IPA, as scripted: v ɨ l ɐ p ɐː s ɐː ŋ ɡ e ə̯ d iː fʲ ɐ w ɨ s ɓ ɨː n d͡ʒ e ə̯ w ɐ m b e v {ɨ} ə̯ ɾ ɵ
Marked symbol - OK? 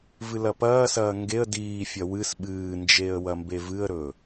yes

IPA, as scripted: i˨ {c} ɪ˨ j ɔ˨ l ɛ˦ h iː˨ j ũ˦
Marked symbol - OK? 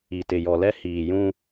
no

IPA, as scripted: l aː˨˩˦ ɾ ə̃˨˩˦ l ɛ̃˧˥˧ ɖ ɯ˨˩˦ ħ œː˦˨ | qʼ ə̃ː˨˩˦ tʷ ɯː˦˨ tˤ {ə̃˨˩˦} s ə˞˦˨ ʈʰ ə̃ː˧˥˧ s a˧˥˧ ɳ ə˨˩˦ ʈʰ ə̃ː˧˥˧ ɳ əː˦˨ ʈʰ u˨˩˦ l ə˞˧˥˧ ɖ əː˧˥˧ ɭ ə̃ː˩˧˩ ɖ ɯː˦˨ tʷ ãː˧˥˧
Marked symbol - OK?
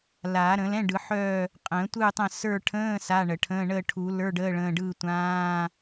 no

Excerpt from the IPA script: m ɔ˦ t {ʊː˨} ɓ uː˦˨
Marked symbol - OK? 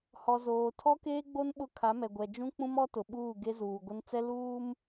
no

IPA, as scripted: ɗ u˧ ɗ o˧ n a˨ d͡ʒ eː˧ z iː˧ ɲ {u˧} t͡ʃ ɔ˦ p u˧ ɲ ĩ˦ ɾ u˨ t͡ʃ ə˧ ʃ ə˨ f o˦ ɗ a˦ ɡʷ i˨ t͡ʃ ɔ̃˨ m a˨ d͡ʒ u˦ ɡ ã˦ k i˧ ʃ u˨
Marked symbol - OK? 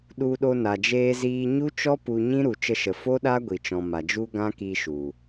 no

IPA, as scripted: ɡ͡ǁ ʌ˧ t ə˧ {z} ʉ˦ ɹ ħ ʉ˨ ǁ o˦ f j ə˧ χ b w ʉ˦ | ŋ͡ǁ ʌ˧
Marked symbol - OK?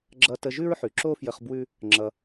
no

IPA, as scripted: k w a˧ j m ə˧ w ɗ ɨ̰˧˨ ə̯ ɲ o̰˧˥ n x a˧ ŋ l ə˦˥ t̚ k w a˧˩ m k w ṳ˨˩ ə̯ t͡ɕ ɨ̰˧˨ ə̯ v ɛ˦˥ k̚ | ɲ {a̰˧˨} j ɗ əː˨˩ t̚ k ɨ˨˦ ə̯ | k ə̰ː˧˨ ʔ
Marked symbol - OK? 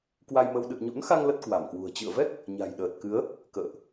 no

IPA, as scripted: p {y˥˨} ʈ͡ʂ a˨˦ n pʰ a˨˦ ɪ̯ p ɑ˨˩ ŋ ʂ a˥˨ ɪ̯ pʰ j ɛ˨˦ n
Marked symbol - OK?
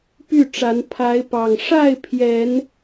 yes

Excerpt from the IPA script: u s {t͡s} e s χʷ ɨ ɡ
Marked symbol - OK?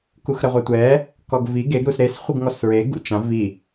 no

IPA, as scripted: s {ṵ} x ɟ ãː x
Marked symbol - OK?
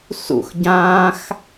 yes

